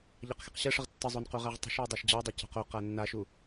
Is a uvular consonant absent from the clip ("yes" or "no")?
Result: no